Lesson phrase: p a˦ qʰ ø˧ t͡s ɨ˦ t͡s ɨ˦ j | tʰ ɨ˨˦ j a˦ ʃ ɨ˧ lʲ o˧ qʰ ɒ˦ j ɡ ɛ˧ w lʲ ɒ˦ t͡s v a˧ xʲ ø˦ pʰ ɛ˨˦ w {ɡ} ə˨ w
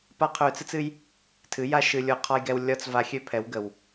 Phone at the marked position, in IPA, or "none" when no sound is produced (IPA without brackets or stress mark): ɡ